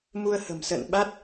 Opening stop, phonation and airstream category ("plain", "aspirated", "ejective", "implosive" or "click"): implosive